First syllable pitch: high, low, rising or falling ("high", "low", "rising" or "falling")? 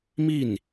falling